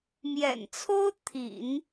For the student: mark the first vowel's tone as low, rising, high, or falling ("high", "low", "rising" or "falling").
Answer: low